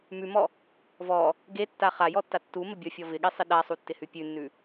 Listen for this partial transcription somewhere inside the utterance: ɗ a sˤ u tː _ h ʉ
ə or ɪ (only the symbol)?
ɪ